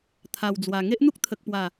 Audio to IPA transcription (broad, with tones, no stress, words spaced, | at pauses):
t̪ʰa˨˩wd͡zwa˨˩ ŋe˦ʔn̪u˦k̚t̪ʰə˨k̚pwa˨˩